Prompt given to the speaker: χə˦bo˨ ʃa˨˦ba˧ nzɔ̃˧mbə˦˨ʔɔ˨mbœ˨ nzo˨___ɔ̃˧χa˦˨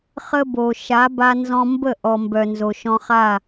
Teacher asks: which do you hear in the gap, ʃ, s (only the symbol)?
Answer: ʃ